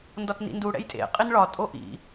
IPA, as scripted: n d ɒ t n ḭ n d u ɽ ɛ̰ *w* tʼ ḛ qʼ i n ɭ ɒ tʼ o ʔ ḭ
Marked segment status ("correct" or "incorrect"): incorrect